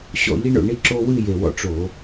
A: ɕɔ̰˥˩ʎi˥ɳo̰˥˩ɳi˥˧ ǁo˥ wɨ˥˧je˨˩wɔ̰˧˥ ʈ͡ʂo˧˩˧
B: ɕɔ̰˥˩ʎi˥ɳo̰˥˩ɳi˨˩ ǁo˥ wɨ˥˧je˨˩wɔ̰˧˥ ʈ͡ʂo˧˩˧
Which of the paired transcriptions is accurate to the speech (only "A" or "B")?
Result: A